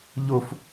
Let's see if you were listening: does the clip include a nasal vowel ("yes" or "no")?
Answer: no